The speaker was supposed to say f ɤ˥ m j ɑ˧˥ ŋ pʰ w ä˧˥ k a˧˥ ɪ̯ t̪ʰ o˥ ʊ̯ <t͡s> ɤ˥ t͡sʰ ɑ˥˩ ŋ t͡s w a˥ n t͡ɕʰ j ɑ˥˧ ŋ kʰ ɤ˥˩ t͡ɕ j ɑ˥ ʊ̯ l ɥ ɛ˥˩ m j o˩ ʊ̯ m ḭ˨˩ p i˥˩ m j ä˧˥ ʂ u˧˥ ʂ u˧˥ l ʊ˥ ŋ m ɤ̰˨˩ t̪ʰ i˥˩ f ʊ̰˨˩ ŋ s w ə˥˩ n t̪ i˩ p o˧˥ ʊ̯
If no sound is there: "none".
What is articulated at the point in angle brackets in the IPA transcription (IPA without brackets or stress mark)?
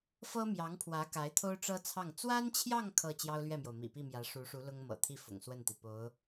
ʈ͡ʂ